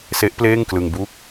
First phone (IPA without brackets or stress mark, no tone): s